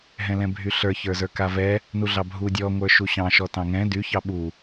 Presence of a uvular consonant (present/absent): absent